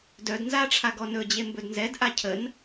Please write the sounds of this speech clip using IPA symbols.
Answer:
d œ d n z a ʈ͡ʂʰ a ɡ ɔ n ɵ d͡ʑ e m b ɵ d n z ɛ d ʔ a cʰ ə n

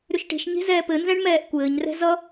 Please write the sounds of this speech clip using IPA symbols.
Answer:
ɾ ʏ ʃ ʈ e̤ ʃ ɲ e̤ z ɛː p ɘ n z ɛ̃ ɳ m ɛː ʔ kʷ ɘː ɲ r ɛ̤ z ʌ

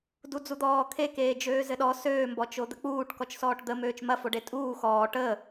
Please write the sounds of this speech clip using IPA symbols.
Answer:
d u d͡z u d̪ ɔː kʰ e k eː d͡ʒ øː z ɘ ɗ ɔ s øː m b ɔ t͡ʃ o d̪ ə k͡p uː ʈ k ɔ t͡ʃ s ɔː ʈ d̪ ə m øː t͡ʃ m ɐ f o ɖ e tʼ uː x ɔː ʈ əː

